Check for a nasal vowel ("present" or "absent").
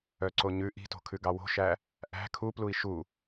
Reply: absent